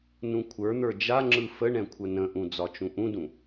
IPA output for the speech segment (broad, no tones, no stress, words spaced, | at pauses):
nũkʷʰə˞n̪ə˞ d͡ʒaŋ͡ǁɯ fəɳɛ̃ kʷʰənə̃ʔũ d͡zɒt͡ʃũʔũdũ